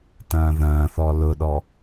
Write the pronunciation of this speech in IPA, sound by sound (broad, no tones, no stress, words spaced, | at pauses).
tɐ̃ːðɐ̃ːθɔ lʊɗɔ